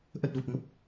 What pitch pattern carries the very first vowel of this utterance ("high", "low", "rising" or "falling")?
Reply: low